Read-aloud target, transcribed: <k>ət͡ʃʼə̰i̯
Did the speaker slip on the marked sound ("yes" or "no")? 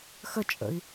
yes